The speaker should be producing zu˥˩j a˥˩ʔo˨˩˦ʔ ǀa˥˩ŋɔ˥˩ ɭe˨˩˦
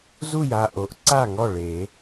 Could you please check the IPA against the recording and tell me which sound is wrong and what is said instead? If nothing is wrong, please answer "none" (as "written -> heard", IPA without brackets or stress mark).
none